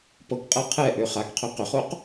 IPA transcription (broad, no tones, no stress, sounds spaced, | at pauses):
p ɤ k qʼ ɤ qʰ ɛ ʔ ø χ a k qʰ ø q ʏ χ o q